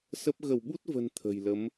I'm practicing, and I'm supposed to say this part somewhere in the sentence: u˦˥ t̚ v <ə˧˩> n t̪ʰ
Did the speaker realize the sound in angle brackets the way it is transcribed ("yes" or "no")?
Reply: no